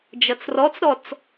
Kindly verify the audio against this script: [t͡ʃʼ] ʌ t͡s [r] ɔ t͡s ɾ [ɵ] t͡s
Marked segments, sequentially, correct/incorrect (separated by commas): incorrect, correct, incorrect